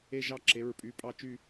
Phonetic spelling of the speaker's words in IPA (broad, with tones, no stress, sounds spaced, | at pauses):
e˦˨ ʒ ɑ˦˨ ǁ e˩˧˩ ɹ pʼ y˩˧˩ pʼ ɑ˦˨ t͡ʃ y˦˨